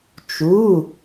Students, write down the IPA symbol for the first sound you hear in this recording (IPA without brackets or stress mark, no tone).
t͡ʃ